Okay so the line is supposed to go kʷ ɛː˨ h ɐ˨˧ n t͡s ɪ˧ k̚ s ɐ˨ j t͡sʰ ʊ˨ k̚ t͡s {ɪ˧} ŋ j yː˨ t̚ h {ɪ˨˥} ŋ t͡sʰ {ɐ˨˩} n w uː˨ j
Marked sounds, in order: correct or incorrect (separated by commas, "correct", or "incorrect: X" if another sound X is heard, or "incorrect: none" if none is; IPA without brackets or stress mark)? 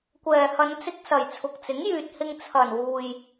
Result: incorrect: ɪ˨˥, incorrect: ɪ˧, correct